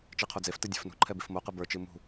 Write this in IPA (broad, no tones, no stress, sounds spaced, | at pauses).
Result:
t͡ʃ i qʰ o d͡z e f t ɨ dʲ ɛ̤ f n ṳ ǃʰ ɛ b i f m o q ɨ b ə˞ t͡ʃ ɨ m ṳ